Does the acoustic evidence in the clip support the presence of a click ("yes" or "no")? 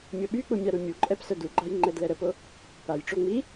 yes